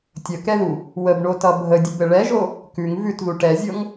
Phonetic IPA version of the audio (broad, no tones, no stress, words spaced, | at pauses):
tʲəkɛðu | wəbɳotʌ bʱədʲəbɘ ɭɛʒo | kʉŋ vʉtðu ʈɛzʲɤŋ